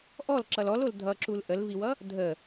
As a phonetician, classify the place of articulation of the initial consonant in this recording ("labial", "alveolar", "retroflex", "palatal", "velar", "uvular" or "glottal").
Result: glottal